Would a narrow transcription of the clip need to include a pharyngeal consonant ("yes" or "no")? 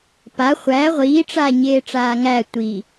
no